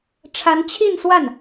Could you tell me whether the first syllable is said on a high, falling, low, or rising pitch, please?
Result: rising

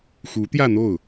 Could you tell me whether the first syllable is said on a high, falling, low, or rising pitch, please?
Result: rising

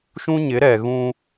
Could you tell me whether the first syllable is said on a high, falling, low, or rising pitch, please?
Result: high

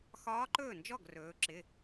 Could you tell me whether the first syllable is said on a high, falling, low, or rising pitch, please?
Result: rising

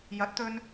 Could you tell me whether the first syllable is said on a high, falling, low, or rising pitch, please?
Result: rising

